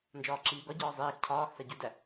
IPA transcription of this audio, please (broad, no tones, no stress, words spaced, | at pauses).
nd͡ʒɒːǁiːɡɒɟɒː zˤeːx cʰɒːxsæ ɟudæ